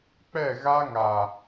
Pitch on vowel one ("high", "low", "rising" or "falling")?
falling